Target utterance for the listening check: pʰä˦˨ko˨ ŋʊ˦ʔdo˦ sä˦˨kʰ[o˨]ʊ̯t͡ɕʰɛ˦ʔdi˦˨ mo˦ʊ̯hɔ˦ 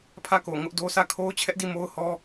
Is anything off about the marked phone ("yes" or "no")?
yes